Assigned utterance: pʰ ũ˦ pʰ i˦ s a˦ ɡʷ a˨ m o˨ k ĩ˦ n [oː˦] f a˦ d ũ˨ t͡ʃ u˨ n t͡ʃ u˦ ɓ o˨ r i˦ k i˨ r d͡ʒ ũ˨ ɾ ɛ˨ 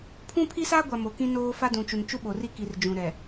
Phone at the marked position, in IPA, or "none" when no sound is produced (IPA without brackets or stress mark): oː˦